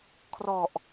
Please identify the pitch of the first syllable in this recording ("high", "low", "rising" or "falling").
low